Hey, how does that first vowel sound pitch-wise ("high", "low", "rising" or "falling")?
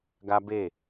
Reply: high